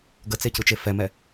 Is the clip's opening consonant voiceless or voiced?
voiced